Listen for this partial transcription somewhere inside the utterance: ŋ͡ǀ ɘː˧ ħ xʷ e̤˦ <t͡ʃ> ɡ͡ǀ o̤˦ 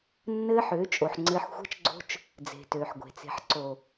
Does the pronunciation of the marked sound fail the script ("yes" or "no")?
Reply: no